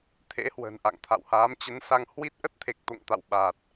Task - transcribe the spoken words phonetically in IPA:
t̪ʰ ḛ˧˥ h w ə̤˨˩ n ʔ a̰˧˨ ŋ t̪ʰ a̰˧˨ w h aː˨˦ m t͡ɕ ə˨˦ n s a˧ ŋ h w i˦˥ t̚ ʔ ə˦˥ t̚ t̪ʰ e˨˩ k̚ t̪ o̰˧˨ ŋ t̪ a̰˧˨ w ɓ aː˨˩ t̚

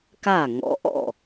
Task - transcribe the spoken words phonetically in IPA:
k a˥˩ ŋ ɔ̰˨˥ ʔ ɔ̰˥˩

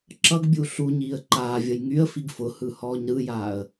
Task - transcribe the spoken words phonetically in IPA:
ǁ ʌ ɡ bʲ u ɬ u ɲ iː ə̯ ǃ aː vʲ ʌ j ŋ y ə̯ f i ɡ f ʊ h ɯ h ɔː ɲ ɾ ɯ j aː ə̯

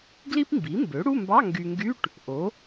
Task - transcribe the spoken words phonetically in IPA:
ɡ l i˥ p m b i˩˥ m b ø˩˥ ɽ u˧˥˧ m b ɑ˧˥˧ ŋ ɡ y˨ ŋ ɡ y˧˥˧ ʈ | ʔ o˩˥

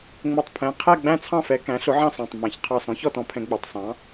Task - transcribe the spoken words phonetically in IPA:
ŋ͡m ʊ˧˩ tˤ pʰ ɛ̃˩˧˩ qʰ æ˥˨ ɡ͡b æ̃˥˨ t͡sʰ ɑ̃˥˨ f ɛ˩˧ k æ̃˩˥ ɬ ʊ˩˥ ʕ ɑ̃˥˨ s ɑ̃˩˧˩ tˤ m æ̃˩˧ ç qʰ ɑ˧˩ s ɔ̃˩˥ ç ɔ˥˨ t ɔ̃˩˥ pʰ ɛ̃˩˧ ɡ͡b u˩˧˩ tˤ s ɑ̃˩˥

